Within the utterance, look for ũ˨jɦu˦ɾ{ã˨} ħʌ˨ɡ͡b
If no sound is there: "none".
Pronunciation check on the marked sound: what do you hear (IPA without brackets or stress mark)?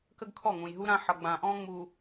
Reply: ã˦